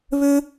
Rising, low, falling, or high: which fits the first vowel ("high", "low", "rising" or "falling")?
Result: high